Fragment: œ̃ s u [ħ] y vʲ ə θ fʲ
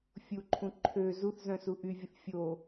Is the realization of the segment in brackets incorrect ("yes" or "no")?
yes